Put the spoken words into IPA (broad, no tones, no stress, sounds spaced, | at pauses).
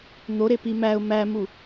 n̪ o ɾ e p i m æ ʊ̯ m æ m u